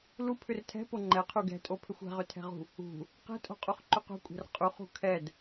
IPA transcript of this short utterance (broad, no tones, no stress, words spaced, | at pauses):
lupʰʏr tʰɛ̤po ŋ͡ǃɛqʰu ɡɛ̤tʼopʰʏxʷ ɛ̤ʁʏtʰɛ̤ʁṳ | ṳ | qɛ̤tʼo̤qʼuχǃʏ qṳkʷʼɛ̤r qʼuχṳ kʰɛd